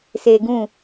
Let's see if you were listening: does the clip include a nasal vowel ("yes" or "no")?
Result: yes